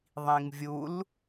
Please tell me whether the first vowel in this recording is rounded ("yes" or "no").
no